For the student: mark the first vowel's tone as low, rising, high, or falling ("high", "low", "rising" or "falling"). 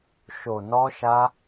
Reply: low